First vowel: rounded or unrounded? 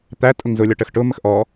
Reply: unrounded